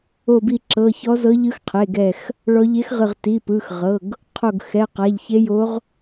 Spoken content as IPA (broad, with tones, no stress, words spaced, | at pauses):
o˧˩bi˧˩ ǁɤ˩˧˩çɔ˧˥zɤ˧˥ ʎɯ˧˥xqʰe˩˧˩ɡɛ˧˩x | ɭɔ˧˥ ʎe˧˥xʁɯ˧˩ʁ ti˩˧˩pɯ˩˧˩xʁɤ˩˧˩ɡ | qʰo˧˩ɡ xɛ˩˧˩qa˩˧˩ʎçe˧˥jo˧˥ʁ